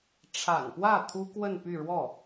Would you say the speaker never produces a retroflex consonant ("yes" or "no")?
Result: no